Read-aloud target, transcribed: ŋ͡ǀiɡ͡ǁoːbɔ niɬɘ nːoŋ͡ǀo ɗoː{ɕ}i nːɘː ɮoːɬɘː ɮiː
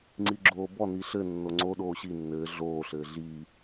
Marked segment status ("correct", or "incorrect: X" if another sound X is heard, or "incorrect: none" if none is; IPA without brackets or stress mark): correct